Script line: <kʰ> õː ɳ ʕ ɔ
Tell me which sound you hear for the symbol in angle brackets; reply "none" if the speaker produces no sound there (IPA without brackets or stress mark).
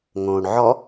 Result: ŋ